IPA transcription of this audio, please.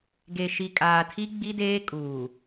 ɡe˨ʃi˨kʼaː˨tʰi˦ ɡ͡bi˦deː˦kʼuː˨

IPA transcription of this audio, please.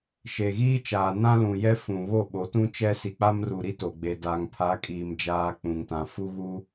ʃe˨ɣiː˦t͡ʃaː˨ nã˦lũ˨jɛ˦fũ˨ βo˦˨ɓo˨˦tũ˦t͡ʃɛ˦ si˨k͡pa˦mru˨ ɾi˦to˨ɡ͡be˨ da˨ŋpʰa˨˦kʼiː˨m d͡ʒaː˦k͡pũ˨ŋtã˨ fu˦ɣu˦

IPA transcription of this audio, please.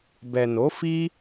bɛ˨no˨˦fi˦

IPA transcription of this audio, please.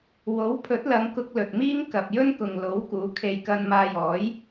wo˨˥wpʰɵ˨˥t̚ lɐ˨˧ŋkʊ˧k̚ lɵ˨t̚miː˥ŋkɐ˨p̚ jɵ˥nkʊ˨ŋlo˨˥wkuː˨˧ kʰe˨jkɐ˧nmaː˧jɔː˨˥j

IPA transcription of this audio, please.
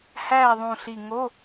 hæː˦˨ðˤũ˨˩ɬi˨˩ ŋo˧˥˧

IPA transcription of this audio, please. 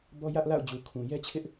bɔ˦jä˦ʔla̰˦˨ʊ̯ d͡ʑu˨kʰũ˨ jɛ˦t͡ɕʰɪ˦ʔ

